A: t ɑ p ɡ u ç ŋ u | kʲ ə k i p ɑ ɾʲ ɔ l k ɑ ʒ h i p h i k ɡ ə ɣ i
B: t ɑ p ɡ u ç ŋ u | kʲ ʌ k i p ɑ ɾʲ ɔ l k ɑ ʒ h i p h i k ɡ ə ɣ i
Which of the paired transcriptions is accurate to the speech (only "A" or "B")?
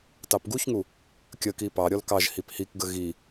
A